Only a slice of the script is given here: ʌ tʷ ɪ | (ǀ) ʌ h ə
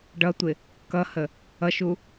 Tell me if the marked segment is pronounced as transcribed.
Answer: no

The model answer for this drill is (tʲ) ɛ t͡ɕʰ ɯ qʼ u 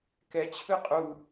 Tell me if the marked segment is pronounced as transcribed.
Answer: no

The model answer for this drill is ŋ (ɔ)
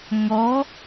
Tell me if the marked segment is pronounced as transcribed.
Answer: yes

